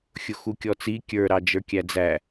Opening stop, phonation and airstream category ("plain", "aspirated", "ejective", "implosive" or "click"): plain